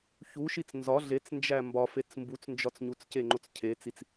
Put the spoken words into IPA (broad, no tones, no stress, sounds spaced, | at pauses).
ç u ʃ i t͡s n z ɒ ɮ e t͡s n d͡ʒ æ m b ɒ f e t͡s m b u t͡s n d͡ʒ ɒ t͡s ɲ u t͡s c e ŋ͡ǃ o t͡s cʰ e t͡s i t͡s